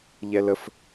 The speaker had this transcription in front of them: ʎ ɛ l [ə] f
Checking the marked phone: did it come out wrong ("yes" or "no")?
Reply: no